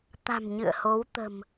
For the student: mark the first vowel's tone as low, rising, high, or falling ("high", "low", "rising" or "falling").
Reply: low